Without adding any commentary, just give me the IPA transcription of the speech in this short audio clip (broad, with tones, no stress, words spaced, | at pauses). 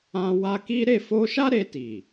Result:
ã˧ wa˧ ki˦ ɾe˦˨fo˧ʃa˦ ɾe˧ti˨